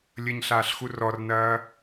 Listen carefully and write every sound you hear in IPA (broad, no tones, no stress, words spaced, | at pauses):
lʲəɲɬaːɬxu rɔrnɐː